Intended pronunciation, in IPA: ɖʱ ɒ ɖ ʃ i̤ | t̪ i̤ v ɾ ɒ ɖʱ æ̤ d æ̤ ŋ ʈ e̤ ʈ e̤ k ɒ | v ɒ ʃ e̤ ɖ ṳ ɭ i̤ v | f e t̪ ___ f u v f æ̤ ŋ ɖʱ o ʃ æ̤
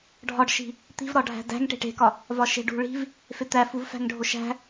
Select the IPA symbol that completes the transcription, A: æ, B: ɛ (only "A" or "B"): A